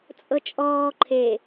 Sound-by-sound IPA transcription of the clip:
t͡sʼɤt͡ʃʼɔː ǃʰe

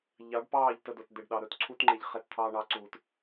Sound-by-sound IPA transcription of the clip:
ʎɑ˨˦ɖpɑː˦˨ʎ tə˧dʊ˨t d̪e˨ɖɗɑ˨ ɾɵː˧tǀʰu˦t ŋ͡ǃe˧ʎχe˧t t̪ʰɑː˧ɳɑ˨˦ǀuː˨t

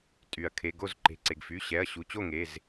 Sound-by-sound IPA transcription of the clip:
tʼy˩ɐ̯kʰe˩˧˩ɡo˥˨z ǃe̤˩˧˩ǀe˩ɡfy˩˧˩ ɕɛ˩˧˩ɐ̯ɕu˩˧˩t͡ɕo˥˨ŋe˩˧˩z

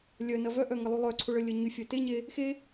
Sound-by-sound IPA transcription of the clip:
lʲœnɐ vœʔœŋəlˠy lˠœǀʰʊɭəlʲə ɲyfʲœ teɲe | xe

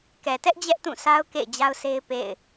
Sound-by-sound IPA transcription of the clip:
kɛ˨tɛ˦ʔ d͡ʑɛ˦ʔtũ˦˨sa˦ʊ̯ kḛ˦˨ɪ̯d͡ʑa˦ʊ̯sʰe˦ɪ̯ pḛ˦˨ɪ̯

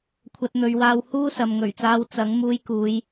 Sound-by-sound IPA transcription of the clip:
kʷʰɐ˧t̚n̪ɵ˨˧ɥwaː˧w huː˥sɐ˨mŋɵ˨˩ɥt͡saː˧w t͡sɐ˨˥ŋ muː˧jkuː˨˧j

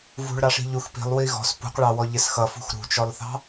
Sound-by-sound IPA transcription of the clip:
vṳɭɾɑʂi̤ ʎux pi̤lˠwi ɣɔ̤s pṳqɭɑwɔʎɪs xʌfṳx ɾṳt͡ʃɔlˠθɑ̤

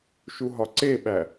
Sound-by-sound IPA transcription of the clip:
ʃuɦɒǀeɓæ

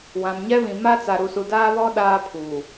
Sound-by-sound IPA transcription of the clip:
wã˨mɲɛ˦βĩ˨ ma˦t͡sa˨ɾu˨su˨ daː˦βɔ˦ ɗaː˦pʰuː˨

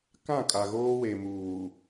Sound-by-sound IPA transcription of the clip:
kã˦˨kʼa˨ ɣoː˦we˨muː˨

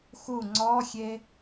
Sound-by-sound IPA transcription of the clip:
xu ŋ͡ǀɔxʲe

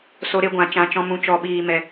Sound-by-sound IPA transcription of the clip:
so˧ɾe˧ɡʷã˨ t͡ʃã˨t͡ʃɔ̃˧mũ˨ t͡ʃɔ˨ɓiː˨ mɛ˨

